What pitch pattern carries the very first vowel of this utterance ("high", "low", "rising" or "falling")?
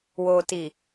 low